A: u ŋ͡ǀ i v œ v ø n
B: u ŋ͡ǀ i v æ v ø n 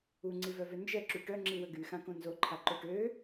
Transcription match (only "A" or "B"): A